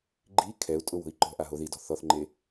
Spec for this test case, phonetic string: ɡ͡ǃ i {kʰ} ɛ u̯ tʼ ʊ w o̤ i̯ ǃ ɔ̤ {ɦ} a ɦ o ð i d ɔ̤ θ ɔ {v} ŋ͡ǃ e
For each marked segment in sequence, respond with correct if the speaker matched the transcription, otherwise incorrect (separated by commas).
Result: correct, incorrect, incorrect